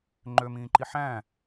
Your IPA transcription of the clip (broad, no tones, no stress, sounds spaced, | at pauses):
ŋ͡ǃ ø m ĩː ǃ i ħ æ̃